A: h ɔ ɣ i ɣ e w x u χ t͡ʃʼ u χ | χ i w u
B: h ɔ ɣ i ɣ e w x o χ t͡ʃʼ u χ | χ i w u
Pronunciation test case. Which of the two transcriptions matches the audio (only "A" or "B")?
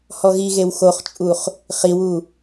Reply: B